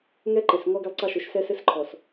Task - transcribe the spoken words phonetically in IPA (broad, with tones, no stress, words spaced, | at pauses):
ŋɛ˦ǃe˨s ŋɔ˦ɡɛ˦lˠǀɑ˦ʃo˨˦ʃ sɛ˦sɘ˦sǃʰɔ˨s